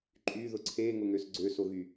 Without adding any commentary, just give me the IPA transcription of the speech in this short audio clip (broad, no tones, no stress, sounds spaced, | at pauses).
ǃʼ y ð ʊ ǀʰ e ŋ ʊ ŋ ø s ɡ͡ǀ ø s o ɣ y